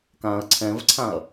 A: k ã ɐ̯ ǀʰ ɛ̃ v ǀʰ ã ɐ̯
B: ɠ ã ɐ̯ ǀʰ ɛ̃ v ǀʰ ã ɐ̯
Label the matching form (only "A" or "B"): A